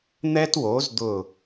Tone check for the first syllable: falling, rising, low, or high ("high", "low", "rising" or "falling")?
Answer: high